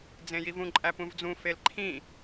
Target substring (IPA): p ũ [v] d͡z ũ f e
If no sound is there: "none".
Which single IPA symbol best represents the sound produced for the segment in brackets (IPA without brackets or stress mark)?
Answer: v